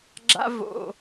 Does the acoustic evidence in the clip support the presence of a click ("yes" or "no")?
yes